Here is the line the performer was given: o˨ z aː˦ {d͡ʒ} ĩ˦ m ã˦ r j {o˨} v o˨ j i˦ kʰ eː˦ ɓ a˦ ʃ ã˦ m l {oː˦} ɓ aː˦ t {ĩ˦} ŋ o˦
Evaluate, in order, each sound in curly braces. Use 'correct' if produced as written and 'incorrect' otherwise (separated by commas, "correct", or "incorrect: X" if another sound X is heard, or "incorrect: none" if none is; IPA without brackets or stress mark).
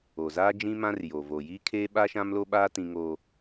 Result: correct, correct, incorrect: o˦, correct